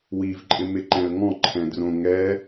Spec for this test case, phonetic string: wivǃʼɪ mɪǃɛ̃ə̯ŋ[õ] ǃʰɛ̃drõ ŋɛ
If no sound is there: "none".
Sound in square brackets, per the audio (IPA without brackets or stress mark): ɔ̃